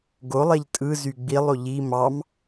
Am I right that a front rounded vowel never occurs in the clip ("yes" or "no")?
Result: no